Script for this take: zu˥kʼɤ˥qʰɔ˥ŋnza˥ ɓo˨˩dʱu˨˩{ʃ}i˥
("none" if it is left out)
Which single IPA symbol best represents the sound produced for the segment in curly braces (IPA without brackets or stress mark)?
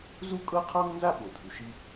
ʃ